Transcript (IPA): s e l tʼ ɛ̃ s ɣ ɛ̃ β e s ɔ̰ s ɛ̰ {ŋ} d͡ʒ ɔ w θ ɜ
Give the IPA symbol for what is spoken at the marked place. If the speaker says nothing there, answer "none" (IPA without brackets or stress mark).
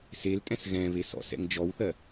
ŋ